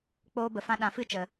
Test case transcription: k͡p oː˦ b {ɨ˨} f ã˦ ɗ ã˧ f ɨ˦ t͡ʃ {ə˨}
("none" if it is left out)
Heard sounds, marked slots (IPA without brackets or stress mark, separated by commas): ə˨, ə˨